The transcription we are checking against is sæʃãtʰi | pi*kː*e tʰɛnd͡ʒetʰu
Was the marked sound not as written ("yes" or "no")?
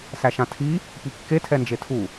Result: no